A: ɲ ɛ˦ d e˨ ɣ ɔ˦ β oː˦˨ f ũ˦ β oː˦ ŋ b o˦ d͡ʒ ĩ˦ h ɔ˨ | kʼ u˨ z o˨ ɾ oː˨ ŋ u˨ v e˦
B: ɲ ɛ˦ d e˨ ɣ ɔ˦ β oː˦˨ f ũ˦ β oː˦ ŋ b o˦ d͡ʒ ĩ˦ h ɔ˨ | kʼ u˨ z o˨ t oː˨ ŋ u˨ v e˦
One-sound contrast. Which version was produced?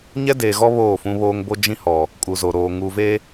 A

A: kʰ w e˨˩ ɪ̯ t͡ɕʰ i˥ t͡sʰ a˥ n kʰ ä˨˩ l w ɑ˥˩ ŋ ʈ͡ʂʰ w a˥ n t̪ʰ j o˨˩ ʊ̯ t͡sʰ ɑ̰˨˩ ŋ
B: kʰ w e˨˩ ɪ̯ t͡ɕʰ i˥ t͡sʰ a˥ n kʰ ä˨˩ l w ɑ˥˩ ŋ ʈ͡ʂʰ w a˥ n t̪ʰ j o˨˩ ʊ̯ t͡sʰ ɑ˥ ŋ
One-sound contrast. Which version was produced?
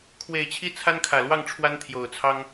B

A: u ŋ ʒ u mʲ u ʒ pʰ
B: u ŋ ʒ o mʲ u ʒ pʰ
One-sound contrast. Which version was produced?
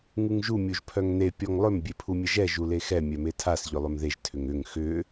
A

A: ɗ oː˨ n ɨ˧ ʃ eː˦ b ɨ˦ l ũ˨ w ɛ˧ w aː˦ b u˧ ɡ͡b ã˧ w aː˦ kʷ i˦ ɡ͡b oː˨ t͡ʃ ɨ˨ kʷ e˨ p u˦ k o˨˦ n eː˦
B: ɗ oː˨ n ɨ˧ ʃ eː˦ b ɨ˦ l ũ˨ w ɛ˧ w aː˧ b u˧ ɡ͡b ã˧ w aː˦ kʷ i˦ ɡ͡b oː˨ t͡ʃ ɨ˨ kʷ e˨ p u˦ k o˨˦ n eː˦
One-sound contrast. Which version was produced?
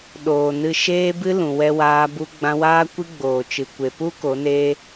B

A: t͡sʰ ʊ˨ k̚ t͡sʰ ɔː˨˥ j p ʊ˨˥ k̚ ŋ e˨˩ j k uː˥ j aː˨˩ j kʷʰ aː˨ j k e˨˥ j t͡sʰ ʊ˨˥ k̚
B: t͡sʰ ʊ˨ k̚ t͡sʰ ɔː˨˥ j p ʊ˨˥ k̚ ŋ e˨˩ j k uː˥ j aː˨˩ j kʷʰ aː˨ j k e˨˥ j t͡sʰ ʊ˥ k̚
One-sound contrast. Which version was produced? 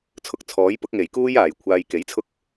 B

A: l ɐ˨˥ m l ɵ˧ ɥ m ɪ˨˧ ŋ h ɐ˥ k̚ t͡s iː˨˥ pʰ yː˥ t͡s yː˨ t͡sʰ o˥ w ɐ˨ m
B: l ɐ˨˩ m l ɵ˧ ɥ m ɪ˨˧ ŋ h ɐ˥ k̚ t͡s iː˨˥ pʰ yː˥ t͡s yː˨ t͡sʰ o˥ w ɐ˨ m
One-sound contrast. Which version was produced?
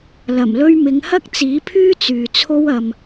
B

